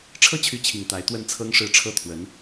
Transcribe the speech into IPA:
ʈ͡ʂʰ ɤ˥ t͡ɕʰ y˧˥ t͡ɕʰ i˨˩ ŋ t̪ a˧˥ ɪ̯ t̪ w ə˥˩ n t͡sʰ ɤ˥ ŋ ʂ ɻ̩˥˩ ʈ͡ʂʰ ɤ˥ t̪ʰ w ə˧˥ n

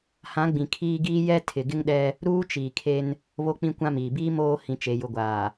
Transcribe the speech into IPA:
h ã˨˦ ɡ͡b ĩ˨ kʰ iː˦ ɡ iː˦ j ɛ˦ tʰ ɪ˨ ɡ ɪ˦ ŋ ɗ ɛ˦ | ɾ uː˦ t͡ʃ iː˨ kʰ e˦ n | β o˦ k͡p ĩ˦ kʷ ã˦ m iː˨ b iː˦ m oː˦ h ĩ˨ t͡ʃ e˨ j ʊ˨ ɡʷ aː˨

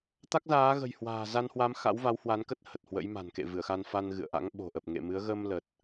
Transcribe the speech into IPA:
t̪ a˦˥ k̚ z aː˨˦ ɣ ə̤˨˩ j h w a̤ː˨˩ z a˧ n h w a˨˦ m x a̰˧˥ w v a˨˦ w h w a˨˦ n k ə˦˥ t̚ h ə˨˩ t̚ h w ə̰˧˥ j m a̤˨˩ n k ḛ˧˨ v ɨ˧˩ ə̯ x a˧ n f a˧ n ɣ ɨ̰˧˨ ə̯ ʔ a̰˧˥ ŋ ɓ o̤˨˩ ʔ ə˨˩ p̚ ŋ ḛ˧˨ m ɨ˨˦ ə̯ ɣ ə˧ m l ə˨˩ t̚

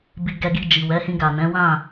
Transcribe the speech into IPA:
b i˧ ɡ ɛ˧ ɡ i˧ d͡ʒ i˨ w ɛ˨˦ h ĩ˧ ɡ a˨ n ɛ̃˨˦ w ã˦˨

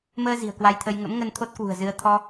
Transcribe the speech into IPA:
m əː˧ z i̤˨˩ ə̯ k w a˧ j t̪ʰ ə˧ j ŋ ə̰˧˥ m ŋ ə˧ n t̪ʰ o˦˥ t̚ k w ṳ˨˩ ə̯ z ɨ˧ ə̯ t̪ʰ ɔ˧

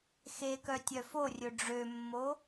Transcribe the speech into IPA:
x e k œ tʲ œ f o rʲ ɵ ɖ͡ʐ ø mː o

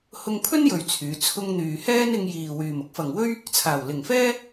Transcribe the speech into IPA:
h ʊ˧ ŋ pʰ ɵ˥ n j ɵ˨ ɥ t͡sʰ yː˨˧ t͡sʰ ʊ˧ ŋ n̪ yː˨ h ɛː˥ n ɪ˧ ŋ j iː˨ w yː˨ m ʊ˥ k̚ f ɐ˨ ŋ w ɵ˥ ɥ | t͡sʰ aː˨˩ w l ɪ˨˩ ŋ f ɛː˥

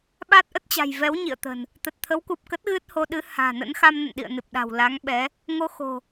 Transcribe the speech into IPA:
ɓ a˦˥ t̚ ʔ ə˦˥ t̚ t͡ɕ a̤˨˩ j v ɛ˨˦ w ɲ ḭ˧˨ ə̯ t̪ ə̤˨˩ n | t̪ ə˨˩ t̚ t̪ʰ ə˨˦ w k u˨˩ p̚ k ə˦˥ t̚ ɣ ɨ˦˥ t̚ h o˧ ɗ ɨ˨˦ h a̤ː˨˩ n ə̰˧˥ n x a˧ m n ə̰˧˨ n ɗ ḭ˧˨ ə̯ n ɨ˨˩ p̚ ɗ a̤˨˩ w l a˨˦ ŋ ɓ ɛ˨˦ | ŋ o˧ x o̤˨˩

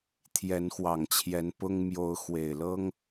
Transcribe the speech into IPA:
t̪ʰ j ɛ˨˦ n x w ɑ˨˩ ŋ t͡ɕʰ j ɛ˨˦ n p ʊ˦ ŋ m j o˨˦ ʊ̯ x w e˨˩ ɪ̯ l ɤ˦ ŋ

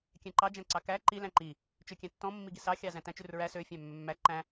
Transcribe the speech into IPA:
kʲ æ̃ ǃ ɑ d͡ʒ æ̃ ǀ ɑ k æ ǃ i l æ̃ ǃ i | t͡ʃ ø kʲ æ̃ tː ɔ̃ mː i ɡ i s ɑ xʲ ɑ z æ̃ t æ̃ t͡ʃ ʉ r ɹ æ s ø fʲ æ̃ mː ø mː æ ǃ æ̃

